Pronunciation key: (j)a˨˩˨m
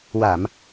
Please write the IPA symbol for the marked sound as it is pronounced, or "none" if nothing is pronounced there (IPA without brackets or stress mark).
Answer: w